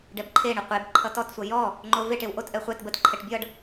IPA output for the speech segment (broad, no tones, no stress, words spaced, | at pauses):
ɖɛbǃʰeɳə qʷeb ǃʰʌtɔtsʷʌ jɔ | ŋ͡ǃoveʈew ʔotʔɛ χʷɛt bətǃʰɛʈ bʲʌɖ